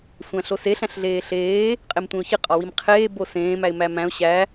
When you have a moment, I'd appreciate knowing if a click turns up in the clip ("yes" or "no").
no